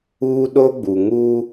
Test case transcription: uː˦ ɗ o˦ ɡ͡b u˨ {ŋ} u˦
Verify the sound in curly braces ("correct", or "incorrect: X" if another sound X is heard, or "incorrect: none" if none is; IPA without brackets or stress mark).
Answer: correct